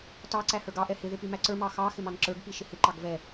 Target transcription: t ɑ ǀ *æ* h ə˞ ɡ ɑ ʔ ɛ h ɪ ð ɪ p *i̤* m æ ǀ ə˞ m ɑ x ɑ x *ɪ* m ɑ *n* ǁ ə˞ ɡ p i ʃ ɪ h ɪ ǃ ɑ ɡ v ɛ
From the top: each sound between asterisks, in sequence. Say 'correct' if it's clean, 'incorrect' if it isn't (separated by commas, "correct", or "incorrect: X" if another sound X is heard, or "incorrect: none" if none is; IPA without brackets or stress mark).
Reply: correct, incorrect: i, correct, correct